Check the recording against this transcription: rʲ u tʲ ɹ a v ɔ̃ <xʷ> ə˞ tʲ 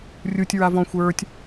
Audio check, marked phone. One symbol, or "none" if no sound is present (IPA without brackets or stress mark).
xʷ